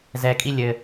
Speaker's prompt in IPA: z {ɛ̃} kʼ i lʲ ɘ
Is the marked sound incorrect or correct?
incorrect